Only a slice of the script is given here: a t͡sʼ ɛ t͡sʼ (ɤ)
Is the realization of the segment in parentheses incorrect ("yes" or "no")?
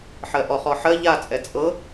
no